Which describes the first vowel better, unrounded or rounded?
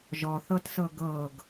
rounded